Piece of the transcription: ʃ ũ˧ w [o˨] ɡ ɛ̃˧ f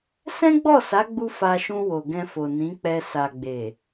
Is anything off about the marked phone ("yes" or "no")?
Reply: no